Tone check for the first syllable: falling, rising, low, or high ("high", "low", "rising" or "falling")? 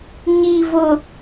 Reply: low